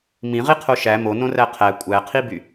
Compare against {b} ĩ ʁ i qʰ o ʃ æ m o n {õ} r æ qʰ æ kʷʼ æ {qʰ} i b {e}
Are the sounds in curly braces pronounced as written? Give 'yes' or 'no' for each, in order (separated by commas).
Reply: no, yes, yes, no